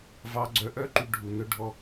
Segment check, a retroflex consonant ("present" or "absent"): present